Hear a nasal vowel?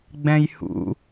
yes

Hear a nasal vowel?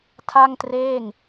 no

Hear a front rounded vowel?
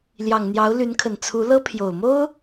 yes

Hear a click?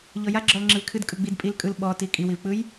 yes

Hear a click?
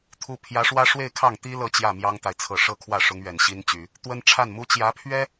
no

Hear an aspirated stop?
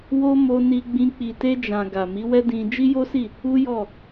no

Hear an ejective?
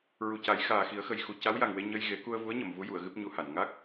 no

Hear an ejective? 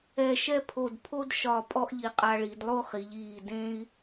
yes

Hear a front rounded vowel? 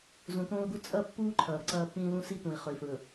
no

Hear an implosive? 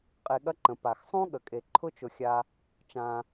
yes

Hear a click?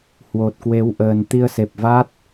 no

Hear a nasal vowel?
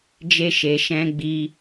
yes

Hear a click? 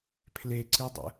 yes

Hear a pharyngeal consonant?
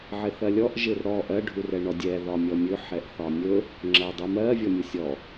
yes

